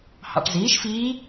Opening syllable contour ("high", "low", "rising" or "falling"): low